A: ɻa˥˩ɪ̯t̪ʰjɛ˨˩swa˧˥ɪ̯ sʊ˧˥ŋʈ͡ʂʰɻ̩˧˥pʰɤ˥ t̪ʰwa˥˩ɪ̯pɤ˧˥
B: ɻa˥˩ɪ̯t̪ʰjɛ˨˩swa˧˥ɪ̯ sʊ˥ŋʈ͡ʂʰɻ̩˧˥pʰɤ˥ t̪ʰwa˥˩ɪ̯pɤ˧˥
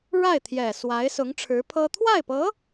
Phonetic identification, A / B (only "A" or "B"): A